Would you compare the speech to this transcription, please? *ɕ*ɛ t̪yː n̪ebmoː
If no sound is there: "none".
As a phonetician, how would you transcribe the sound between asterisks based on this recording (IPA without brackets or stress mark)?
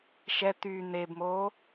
ʃ